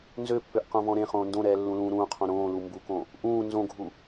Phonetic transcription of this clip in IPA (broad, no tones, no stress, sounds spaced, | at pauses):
n z ø pː ø ʔ q õ v ɔ̃ ɾ ẽ χ õː n d õ ɾ ɛː lː ũ l ũː ɾ ũː qʰ õ ɾ õː l u m b u k õ | ʔ ũː n z õ ɡʱ u